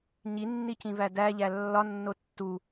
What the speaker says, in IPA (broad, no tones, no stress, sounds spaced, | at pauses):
ɲ i nː i c ĩ v æ d æ ʎ æ lː ɒ nː o tː u